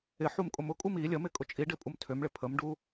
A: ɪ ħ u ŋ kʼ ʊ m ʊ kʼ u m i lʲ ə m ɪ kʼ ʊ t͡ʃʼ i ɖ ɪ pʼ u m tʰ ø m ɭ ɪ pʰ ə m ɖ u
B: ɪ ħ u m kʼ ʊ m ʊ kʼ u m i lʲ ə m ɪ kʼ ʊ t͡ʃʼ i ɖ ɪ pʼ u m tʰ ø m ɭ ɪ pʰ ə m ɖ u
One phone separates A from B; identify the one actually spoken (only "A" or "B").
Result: B